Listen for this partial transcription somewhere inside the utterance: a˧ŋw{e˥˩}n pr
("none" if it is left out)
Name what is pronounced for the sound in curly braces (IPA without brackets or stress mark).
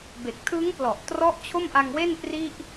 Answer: e˥˩